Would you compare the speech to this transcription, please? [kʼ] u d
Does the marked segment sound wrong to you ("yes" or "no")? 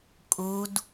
no